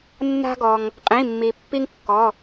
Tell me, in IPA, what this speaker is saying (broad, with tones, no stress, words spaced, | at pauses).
nːa̤˦ ɡɔ˩ŋ | qʼĩ˩˧˩mːi˩pːi˦ŋkːɔ˩˧˩